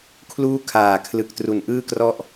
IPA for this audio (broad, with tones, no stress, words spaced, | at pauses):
kʰluː˦˥kʰaː˨˩kʰlɯ˨˩k̚ tru˩˦nʔɯː˥˩krɔ˥˩ʔ